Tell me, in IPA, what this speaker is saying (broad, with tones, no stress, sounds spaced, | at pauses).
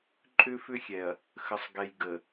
ǃʼ ʏ˦ f ʏ˦ xʲ ɛ˨ ɐ̯ | x ə˨ sˤ ɡ ɛ˨ j ɡ ə˨